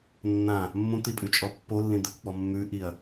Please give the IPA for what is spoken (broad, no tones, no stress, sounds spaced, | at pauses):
nː ã | mː ũ t̪ i pʼ ʉ t͡ʃʼ ɔ pː o lː ĩ d̪ e kʷ k͡p ɔ mː ʉ ʔ i ɐ̯